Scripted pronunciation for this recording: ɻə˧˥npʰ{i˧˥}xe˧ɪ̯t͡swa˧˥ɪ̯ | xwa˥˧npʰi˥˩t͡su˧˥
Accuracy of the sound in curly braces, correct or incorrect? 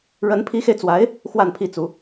correct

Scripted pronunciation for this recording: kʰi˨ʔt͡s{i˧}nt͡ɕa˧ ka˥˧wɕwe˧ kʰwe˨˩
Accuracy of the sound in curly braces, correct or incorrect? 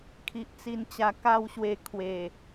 correct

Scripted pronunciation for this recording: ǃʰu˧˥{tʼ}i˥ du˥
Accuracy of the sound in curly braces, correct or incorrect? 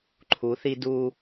incorrect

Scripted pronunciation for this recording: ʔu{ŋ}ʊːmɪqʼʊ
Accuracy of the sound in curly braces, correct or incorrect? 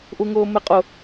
correct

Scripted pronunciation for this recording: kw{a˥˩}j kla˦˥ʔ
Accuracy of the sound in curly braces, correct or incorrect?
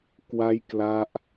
incorrect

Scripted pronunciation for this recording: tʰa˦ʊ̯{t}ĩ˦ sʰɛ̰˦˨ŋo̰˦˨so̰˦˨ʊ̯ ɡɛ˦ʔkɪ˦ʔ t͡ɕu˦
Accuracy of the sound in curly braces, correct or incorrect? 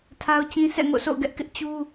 incorrect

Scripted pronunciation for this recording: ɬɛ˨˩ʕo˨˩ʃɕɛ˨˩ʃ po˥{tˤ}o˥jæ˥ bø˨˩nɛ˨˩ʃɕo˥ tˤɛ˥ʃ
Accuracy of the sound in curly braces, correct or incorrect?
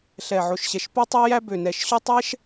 correct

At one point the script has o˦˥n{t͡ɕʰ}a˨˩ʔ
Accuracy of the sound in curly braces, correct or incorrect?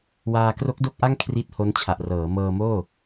correct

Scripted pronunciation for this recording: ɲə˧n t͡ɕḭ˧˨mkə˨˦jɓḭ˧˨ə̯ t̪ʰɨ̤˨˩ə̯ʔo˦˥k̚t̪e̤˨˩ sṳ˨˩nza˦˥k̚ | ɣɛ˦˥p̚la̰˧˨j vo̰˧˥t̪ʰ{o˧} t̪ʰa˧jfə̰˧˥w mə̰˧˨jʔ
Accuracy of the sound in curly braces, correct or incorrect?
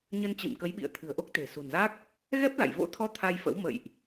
incorrect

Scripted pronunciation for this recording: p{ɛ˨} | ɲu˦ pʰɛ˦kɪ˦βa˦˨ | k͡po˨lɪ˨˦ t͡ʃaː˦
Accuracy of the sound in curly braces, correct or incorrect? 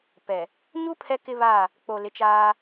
correct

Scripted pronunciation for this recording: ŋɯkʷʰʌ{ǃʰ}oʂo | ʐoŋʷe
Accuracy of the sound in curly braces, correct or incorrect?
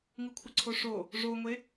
incorrect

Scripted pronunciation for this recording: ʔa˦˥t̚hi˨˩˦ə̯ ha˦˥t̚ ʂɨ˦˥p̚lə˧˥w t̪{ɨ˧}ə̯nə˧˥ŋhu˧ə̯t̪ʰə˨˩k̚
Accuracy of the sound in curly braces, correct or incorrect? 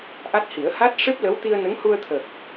incorrect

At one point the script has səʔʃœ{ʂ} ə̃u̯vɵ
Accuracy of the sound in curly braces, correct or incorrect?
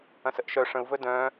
correct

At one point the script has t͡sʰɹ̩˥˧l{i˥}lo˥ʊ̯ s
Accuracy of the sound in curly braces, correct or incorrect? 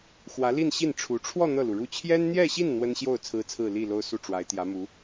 incorrect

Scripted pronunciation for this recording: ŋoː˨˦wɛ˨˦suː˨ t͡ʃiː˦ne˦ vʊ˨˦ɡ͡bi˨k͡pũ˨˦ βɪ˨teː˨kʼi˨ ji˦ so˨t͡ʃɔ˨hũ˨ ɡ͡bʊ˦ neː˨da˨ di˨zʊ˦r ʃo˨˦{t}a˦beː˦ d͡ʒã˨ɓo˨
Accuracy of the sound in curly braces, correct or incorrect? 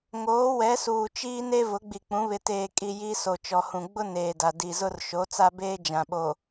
incorrect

